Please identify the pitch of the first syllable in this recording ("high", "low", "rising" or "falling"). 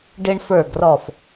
high